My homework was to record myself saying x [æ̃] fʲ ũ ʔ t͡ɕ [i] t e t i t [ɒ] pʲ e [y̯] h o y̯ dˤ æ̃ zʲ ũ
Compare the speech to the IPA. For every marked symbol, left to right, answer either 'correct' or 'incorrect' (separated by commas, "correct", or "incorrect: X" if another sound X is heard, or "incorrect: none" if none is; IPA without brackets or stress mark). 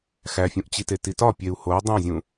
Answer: incorrect: æ, correct, correct, incorrect: u̯